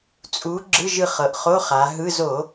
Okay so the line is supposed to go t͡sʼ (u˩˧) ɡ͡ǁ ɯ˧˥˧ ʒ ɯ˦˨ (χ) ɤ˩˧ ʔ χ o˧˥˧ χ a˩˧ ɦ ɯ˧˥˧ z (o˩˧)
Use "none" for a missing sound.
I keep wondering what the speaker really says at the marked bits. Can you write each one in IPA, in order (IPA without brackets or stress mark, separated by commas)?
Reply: u˩˧, χ, o˧˩˧